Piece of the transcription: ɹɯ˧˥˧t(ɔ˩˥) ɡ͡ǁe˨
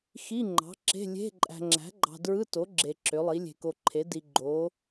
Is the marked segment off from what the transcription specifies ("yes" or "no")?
yes